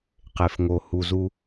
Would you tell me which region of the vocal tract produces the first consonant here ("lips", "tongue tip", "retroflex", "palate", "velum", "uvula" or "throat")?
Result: uvula